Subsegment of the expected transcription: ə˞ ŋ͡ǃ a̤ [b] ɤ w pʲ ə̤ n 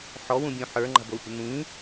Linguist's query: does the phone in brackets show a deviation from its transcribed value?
no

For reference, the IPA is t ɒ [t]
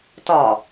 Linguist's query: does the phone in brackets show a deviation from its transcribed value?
yes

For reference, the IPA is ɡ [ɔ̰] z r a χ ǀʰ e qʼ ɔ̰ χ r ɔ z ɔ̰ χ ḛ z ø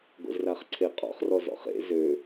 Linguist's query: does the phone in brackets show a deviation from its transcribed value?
yes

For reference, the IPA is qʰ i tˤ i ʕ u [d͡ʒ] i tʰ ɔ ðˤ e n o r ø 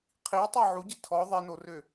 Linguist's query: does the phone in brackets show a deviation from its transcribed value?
yes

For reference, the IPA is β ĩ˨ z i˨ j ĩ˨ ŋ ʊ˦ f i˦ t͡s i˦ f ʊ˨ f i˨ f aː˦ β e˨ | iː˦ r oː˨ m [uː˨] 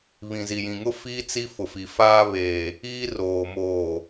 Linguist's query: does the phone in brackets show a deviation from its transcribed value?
yes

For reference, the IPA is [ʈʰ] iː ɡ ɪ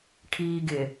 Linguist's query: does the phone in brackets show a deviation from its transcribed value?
no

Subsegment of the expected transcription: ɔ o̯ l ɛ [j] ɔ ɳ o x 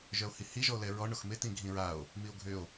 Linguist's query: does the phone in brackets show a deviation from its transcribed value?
yes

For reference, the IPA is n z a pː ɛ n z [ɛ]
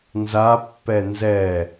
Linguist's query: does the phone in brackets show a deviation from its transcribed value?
no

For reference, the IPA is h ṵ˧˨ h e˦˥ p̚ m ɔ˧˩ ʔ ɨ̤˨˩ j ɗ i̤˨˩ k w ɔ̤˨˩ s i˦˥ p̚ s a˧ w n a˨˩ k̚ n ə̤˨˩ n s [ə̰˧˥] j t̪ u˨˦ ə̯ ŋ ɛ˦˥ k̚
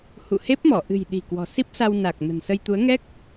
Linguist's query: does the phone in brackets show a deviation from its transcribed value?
yes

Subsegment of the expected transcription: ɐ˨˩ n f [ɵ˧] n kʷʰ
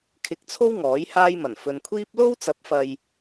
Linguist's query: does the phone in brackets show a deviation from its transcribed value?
yes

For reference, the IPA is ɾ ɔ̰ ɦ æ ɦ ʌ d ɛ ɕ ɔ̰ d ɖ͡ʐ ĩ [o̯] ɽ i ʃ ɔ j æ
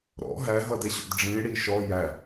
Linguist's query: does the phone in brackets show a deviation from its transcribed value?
yes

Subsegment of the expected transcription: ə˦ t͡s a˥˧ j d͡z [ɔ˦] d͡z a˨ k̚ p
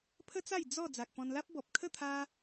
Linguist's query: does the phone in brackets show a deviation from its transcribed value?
yes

